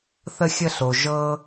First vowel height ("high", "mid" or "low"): mid